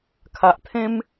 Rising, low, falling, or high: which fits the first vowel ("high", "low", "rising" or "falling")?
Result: low